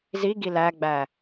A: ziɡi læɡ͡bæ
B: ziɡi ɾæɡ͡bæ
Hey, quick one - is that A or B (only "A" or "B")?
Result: A